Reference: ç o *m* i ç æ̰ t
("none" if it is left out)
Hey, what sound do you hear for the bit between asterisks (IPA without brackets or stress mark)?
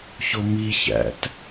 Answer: m